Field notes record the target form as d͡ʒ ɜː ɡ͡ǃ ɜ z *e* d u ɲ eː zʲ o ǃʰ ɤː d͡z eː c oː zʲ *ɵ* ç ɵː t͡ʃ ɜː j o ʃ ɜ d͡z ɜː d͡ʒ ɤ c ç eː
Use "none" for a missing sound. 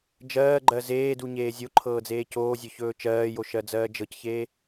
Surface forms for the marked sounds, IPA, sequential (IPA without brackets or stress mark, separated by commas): eː, ɵ